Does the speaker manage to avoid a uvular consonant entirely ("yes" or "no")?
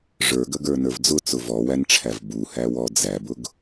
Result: yes